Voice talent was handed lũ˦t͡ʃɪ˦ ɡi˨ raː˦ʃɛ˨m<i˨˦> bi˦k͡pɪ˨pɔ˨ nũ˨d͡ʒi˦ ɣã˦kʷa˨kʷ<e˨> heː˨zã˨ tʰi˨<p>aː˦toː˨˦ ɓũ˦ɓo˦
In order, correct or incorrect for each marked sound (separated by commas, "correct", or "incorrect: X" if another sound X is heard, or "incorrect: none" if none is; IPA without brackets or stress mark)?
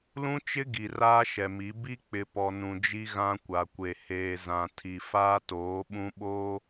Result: correct, correct, incorrect: f